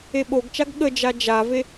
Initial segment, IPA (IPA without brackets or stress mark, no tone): e